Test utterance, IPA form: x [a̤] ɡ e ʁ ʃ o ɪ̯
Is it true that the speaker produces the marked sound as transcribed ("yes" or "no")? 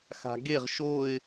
yes